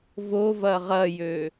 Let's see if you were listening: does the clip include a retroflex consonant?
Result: no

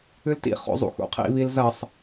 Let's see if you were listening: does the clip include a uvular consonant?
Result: yes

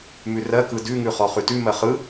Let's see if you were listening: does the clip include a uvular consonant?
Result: yes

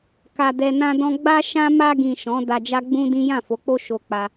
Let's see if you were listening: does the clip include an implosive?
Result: no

